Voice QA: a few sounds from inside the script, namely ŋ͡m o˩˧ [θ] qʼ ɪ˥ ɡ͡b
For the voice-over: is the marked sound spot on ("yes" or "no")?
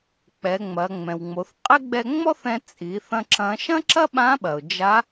yes